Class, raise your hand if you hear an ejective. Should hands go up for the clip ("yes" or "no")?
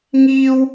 no